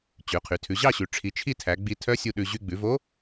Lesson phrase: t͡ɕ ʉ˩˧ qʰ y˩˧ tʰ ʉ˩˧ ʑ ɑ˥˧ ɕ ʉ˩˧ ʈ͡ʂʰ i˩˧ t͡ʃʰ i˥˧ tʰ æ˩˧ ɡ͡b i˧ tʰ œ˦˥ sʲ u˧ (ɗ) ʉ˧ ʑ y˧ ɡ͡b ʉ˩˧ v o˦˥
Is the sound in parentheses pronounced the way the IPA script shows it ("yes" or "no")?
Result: yes